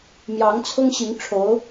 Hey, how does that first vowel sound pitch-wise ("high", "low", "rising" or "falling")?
rising